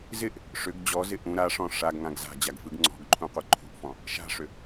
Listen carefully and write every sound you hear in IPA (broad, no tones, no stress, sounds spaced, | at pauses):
z ɪ ʔ | ʂ ʏ ɡ d͡ʑ ɔ z ɪ ʔ ũ ɾ a ʂ ɔ̃ ʂ a ɡ ŋ ã ɡ z a̤ d͡ʑ a ɡ f ɯ ɡ ŋ͡ǀ ɔ̤ ɡ ǃʰ ũ qʷ ɯ ǃʰ ṳ ʔ f ɔ̃ | ʃ a̤ ʂ ʏ